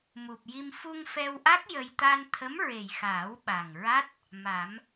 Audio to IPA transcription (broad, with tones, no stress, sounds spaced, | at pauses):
m u˨˩ p̚ j i˧ m f u˧ ŋ f ɛ˧ w ʔ a˦˥ k̚ j ə˧ j t̪ a˧ n t̪ʰ ə˧˥ m ɹ e˨˩ j x aː˨˩˦ w ɓ a˨˩ ŋ ɹ a˦˥ t̚ | m a˨˩˦ m